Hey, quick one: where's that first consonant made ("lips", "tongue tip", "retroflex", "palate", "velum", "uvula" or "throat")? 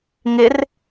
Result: velum